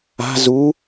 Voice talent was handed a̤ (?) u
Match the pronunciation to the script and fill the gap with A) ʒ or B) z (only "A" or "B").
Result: B